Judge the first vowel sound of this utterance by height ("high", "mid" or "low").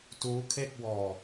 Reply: high